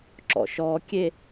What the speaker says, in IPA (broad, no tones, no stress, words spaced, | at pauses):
ǁɔ̰ʃɔkʲe